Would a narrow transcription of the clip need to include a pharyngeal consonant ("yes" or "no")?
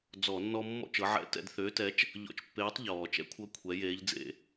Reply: yes